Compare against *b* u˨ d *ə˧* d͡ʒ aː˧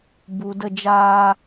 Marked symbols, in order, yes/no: yes, yes

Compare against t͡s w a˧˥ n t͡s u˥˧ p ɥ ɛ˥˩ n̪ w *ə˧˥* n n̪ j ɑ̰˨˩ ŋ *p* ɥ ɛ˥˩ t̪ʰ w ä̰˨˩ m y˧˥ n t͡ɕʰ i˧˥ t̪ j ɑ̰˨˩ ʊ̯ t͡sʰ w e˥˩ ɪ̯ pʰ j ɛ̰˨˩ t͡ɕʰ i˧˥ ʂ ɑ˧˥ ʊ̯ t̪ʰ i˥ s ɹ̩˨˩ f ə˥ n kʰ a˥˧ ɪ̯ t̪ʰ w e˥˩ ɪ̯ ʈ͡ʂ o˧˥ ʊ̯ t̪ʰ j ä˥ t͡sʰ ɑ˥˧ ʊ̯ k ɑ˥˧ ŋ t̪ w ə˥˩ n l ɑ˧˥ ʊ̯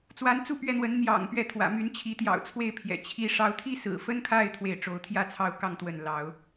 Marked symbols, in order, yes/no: yes, yes

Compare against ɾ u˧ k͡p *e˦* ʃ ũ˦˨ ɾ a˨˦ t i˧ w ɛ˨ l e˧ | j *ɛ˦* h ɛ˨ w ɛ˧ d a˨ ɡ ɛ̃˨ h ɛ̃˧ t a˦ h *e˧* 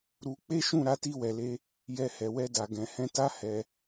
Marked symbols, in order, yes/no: yes, no, no

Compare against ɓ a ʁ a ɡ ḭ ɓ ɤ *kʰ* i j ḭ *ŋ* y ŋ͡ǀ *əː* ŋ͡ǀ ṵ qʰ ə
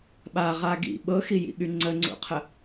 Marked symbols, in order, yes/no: no, no, no

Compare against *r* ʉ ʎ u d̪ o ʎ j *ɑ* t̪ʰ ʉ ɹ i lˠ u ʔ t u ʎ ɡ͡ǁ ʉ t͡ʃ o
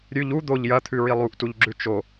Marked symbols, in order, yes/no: no, no

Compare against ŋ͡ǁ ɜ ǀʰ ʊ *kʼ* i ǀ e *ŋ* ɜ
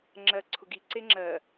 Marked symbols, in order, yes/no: no, no

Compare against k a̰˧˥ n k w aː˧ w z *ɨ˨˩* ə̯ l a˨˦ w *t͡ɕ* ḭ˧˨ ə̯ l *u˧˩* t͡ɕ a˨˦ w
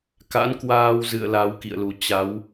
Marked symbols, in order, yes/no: no, no, no

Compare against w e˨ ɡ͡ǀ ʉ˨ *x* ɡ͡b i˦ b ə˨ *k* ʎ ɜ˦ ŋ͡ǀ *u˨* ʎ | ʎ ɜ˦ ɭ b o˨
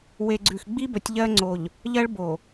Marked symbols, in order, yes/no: yes, no, no

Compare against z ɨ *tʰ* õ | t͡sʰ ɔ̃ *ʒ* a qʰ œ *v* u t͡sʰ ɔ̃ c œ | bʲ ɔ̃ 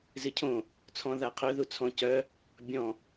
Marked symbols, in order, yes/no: no, no, no

